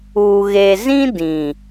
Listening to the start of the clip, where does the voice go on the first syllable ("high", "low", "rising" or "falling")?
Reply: low